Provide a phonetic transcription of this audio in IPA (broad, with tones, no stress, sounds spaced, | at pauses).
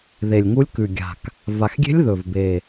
ð e˨˩ lʲ ŋ u˧˥ lʲ k ʉ˨˩ ɡʲ a̤˨˩ k | v a˨˩ x ɡʲ e̤˧˥ lʲ ð ɵ˨˩ v b e˨˩